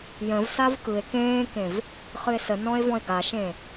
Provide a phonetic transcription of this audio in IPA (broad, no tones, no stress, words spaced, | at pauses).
jə̃vsav kɯe̯ kẽːkẽv | χɨe̯sənɔ̃e̯ vɔ̃e̯ɡaʃẽ